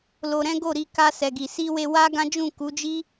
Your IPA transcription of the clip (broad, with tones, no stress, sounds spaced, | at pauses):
l o˧ ɾ ɛ̃˦ ɡ o˦˨ ɾ i˧ k a˧ s ɛ˨ ɡ i˨ s i˧ w e˧ w a˦ ɡ ã˦ d͡ʒ ũ˦˨ k u˨˦ d͡ʒ i˦